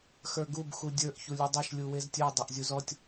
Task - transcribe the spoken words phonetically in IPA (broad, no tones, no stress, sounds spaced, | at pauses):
x ə˞ ɡ u b x u dʲ ə˞ ʔ ç u lʲ u dˤ e ʃ lʲ u w e z tʲ ə˞ dˤ e ʔ zʲ u z ɔ tʲ